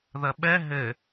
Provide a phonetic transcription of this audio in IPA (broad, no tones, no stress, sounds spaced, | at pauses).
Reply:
ð ɐ ɓ ɛ ɦ ɘ